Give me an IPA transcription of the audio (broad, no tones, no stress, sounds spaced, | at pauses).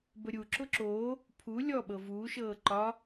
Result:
b ə ɾʲ u ǁ ʊ ǁ o | pʰ u lʲ ɔ ɓ ɤ v uː ʃ ɤː ǃ ɒ